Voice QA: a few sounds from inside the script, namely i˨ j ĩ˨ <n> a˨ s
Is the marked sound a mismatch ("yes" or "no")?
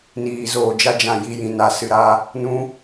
no